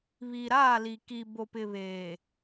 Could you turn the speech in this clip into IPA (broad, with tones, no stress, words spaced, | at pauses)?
βi˨ɾaː˦˨li˨ ki˨bo˨pɪ˨βeː˨